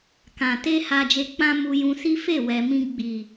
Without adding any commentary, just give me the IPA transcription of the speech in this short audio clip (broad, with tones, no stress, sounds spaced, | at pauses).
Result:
k ã˨ t e˧ h a˧ d͡ʒ e˧ k͡p ã˦ m u˧ j ũ˧ s i˦ f e˦˨ w ɛ˨ m ĩ˧ ɡ͡b i˨